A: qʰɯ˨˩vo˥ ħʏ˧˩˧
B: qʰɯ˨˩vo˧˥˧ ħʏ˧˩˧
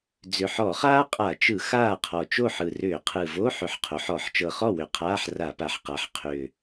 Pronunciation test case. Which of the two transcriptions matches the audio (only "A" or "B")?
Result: B